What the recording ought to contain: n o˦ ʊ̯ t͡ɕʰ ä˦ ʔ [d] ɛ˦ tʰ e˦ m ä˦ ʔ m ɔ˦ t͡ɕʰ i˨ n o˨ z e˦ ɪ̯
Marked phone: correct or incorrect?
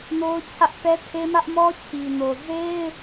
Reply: incorrect